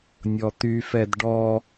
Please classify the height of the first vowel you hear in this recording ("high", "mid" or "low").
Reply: mid